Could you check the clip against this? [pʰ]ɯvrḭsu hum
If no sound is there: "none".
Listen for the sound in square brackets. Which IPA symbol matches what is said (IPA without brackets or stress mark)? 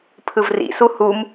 pʰ